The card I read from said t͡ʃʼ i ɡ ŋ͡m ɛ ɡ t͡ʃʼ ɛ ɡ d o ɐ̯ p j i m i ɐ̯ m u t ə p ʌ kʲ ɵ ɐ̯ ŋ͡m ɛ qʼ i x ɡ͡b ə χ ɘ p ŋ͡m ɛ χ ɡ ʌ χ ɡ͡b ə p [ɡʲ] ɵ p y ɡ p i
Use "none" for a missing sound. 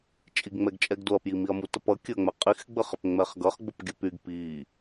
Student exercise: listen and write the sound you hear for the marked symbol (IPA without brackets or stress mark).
ɡʲ